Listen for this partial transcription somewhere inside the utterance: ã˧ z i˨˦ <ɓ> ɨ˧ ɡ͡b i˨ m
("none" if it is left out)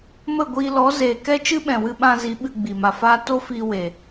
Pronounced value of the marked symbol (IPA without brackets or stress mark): ɓ